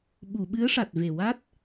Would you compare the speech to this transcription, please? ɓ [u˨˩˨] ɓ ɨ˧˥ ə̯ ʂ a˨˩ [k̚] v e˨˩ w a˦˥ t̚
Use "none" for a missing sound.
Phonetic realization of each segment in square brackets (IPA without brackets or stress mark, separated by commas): u˨˩˨, t̚